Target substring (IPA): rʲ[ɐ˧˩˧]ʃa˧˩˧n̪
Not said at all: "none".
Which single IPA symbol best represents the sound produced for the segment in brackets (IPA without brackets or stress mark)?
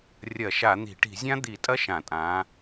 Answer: ɐ˧˩˧